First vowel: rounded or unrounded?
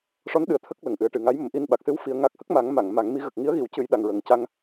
rounded